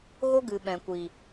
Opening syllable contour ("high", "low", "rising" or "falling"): high